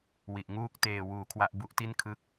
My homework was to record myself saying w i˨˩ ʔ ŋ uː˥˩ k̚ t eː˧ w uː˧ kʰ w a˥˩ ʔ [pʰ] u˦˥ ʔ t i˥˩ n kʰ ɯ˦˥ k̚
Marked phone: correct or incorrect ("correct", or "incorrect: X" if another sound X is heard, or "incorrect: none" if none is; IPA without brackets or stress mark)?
incorrect: b